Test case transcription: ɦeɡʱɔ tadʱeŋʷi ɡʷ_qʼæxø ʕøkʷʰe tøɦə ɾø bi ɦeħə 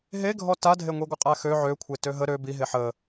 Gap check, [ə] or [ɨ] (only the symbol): ə